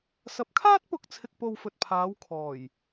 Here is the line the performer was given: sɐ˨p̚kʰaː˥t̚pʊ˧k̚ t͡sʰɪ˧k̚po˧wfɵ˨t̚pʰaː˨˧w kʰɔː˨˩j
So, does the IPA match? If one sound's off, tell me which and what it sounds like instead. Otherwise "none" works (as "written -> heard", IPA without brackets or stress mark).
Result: none